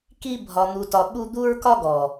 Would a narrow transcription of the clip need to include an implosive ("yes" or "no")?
yes